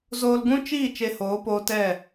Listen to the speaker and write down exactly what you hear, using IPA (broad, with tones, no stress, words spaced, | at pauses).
zoː˧lɡũ˦ t͡ʃiː˦˨ t͡ʃe˧hoː˨˦poː˧tɛ˦˨